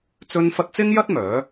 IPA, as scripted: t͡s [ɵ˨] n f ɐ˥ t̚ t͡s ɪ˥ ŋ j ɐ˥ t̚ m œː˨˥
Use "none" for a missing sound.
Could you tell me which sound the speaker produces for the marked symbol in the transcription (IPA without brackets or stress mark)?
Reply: ɵ˥